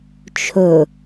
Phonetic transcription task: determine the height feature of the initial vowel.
mid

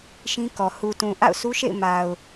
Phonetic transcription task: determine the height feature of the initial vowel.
high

